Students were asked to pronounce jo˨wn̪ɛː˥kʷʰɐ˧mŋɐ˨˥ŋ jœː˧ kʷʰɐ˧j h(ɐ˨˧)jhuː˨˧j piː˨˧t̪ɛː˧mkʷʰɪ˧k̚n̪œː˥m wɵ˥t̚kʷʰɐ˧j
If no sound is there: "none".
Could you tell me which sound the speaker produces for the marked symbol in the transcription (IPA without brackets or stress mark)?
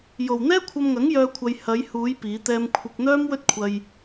ɐ˨˧